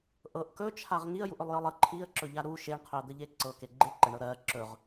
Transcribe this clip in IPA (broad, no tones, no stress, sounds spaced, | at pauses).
ʔ ɤ ʔ k ɵ t͡ʃʰ a ʁ ŋ i ə̯ j u ʔ ɵ lˠ j ɤ lˠ ə ǃʰ i ə̯ ǁ ɵ ʎ a ɾ u ʃ e ɳ qʰ ɵ ə̯ d̪ ə ʎ e ǀ ɤ k e ɡ͡ǃ e ǃ ə ɳ ɤ ɾ ɜ ǁ ɵ ʁ